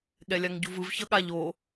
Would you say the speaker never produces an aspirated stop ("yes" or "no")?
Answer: yes